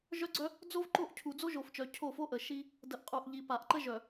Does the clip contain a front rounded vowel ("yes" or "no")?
yes